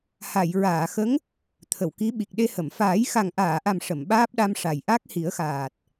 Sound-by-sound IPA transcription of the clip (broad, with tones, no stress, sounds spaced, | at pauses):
h a˨˩˨ j ɹ aː˨˩˨ x ə˧˥ ŋ | t̪ʰ ə˨˩˨ w k i˧˥ ɓ i˨˩ k̚ ɗ e˧ h ə˨˩˨ m f aː˨˩˦ j x a˨˩ ŋ ʔ aː˨˩˨ ʔ a˨˩ m ʂ ə˨˩˨ m ɓ aː˦˥ p̚ ɗ a˧ m ʂ a˨˩ j ʔ a˦˥ k̚ h i˨˩˦ ə̯ x aː˨˩ t̚